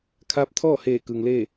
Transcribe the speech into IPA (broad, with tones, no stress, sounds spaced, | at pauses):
kʰ aː˧˥ p̚ t̪ʰ ɔː˥˨ h eː˧˩ k ɯː˩ ŋ l eː˥˨